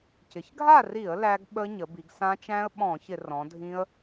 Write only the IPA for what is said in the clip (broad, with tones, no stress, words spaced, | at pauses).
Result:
cɪ˩˧çɡʱa˥˨ri˧˩˧ə̯ læ˦˥ɡ ɓə˦˥ɲə˩˧bi˩˧ɡ sã˦˥ t͡ʃæ̃˦˥ə̯ ɓɔ̃˧˩˧çɪ˧˩˧ rɔ̃˩˧dʱĩ˦˥ə̯